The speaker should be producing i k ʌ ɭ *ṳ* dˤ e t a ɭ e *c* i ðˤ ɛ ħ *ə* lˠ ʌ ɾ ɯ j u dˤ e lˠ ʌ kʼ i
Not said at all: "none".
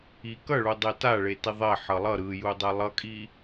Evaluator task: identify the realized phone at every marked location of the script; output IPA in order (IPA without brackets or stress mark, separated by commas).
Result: u, t, ʌ